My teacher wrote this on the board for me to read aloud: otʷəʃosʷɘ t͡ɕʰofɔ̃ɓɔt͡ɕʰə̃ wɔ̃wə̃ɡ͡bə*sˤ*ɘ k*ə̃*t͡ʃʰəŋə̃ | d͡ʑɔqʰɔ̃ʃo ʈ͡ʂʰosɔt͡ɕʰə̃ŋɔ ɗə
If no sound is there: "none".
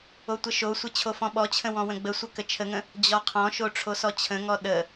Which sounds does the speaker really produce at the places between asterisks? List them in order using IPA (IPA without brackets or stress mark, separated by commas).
sʷ, ə